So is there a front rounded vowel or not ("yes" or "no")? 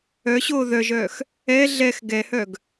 yes